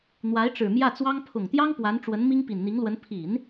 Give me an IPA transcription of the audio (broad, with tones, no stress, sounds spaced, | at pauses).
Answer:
n̪ w a˧˥ ɪ̯ ʈ͡ʂ ɻ̩˨˩ m j ä˥˩ t͡s w ɑ˥ ŋ pʰ ʊ˨˩ ŋ t̪ j ɑ˥ ŋ p w a˧˥ n ʈ͡ʂ w ə˧˥ n m i˥ ŋ p i˨˩ n n̪ i˧˥ ŋ l w ə˧˥ n pʰ i˨˩˦ n